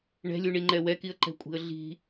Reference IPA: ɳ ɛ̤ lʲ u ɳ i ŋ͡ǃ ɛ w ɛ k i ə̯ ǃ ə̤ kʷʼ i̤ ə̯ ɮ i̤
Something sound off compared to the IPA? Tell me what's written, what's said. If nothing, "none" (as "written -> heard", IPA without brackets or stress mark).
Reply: ə̤ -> ɛ̤